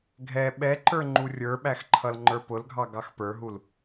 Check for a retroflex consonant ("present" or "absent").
absent